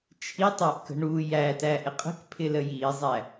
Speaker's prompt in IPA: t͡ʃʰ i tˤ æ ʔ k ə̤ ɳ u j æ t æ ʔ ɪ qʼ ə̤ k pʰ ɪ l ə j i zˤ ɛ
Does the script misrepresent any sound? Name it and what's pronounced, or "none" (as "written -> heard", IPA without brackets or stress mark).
ɛ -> æ